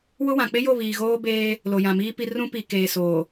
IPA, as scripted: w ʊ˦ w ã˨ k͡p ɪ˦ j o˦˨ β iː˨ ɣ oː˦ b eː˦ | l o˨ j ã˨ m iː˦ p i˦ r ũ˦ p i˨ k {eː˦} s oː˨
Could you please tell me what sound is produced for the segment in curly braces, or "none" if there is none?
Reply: eː˨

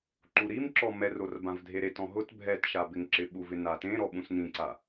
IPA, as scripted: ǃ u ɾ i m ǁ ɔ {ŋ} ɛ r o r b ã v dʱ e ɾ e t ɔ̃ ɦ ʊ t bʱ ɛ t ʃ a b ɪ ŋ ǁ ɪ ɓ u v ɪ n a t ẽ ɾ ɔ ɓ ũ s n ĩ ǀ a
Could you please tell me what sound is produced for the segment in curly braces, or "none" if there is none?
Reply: m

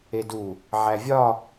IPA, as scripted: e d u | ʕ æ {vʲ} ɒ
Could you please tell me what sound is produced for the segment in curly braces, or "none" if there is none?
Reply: vʲ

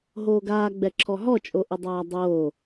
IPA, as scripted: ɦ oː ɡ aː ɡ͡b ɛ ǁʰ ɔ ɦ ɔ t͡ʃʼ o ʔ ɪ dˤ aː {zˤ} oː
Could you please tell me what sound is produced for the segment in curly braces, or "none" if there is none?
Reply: dˤ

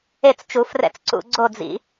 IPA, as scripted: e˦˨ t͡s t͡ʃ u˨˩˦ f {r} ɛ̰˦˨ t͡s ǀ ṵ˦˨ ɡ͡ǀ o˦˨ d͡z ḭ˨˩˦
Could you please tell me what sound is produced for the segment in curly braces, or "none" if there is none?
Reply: r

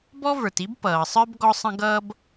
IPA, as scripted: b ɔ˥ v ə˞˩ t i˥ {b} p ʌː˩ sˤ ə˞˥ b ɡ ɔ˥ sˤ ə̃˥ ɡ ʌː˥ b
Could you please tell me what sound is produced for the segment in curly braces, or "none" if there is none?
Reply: b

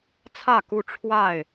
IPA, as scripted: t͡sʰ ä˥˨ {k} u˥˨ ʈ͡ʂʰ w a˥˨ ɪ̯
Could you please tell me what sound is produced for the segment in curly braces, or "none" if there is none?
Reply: k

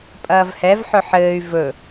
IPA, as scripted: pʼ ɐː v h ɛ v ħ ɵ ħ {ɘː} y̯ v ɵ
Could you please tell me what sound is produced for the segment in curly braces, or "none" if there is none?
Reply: ɘː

